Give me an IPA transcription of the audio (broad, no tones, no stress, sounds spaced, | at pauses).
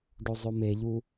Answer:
ɖ o zˤ o m e ʎ u